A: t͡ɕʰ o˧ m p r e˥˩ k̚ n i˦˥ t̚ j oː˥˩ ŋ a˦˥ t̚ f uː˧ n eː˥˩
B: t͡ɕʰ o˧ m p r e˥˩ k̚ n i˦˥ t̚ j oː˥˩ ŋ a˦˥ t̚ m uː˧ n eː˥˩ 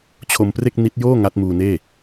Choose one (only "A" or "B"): B